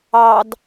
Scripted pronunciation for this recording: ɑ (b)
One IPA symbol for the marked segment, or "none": d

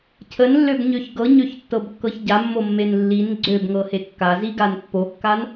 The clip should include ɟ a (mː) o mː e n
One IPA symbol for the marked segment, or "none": mː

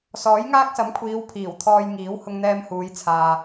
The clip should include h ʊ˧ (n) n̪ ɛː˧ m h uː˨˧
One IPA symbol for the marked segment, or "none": ŋ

